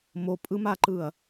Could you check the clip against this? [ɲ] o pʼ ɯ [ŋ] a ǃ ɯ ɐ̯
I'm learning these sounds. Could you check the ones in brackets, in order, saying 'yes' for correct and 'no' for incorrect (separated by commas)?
no, no